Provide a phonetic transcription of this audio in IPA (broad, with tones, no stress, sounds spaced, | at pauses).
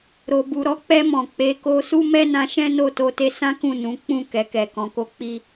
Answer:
ɾ o˨ b u˨ ɾ ɔ˨˦ k͡p ɛ˧ m ɔ̃˨ k͡p e˨˦ k o˧ s u˦ m ɛ˦ n ã˧ ʃ ɛ̃˦ n o˦˨ t o˧ t e˧ s ã˦ k ũ˦˨ n ũ˨˦ k͡p ũ˦˨ k ɛ˨ k ɛ˨ k ɔ̃˨ k o˧ k͡p i˦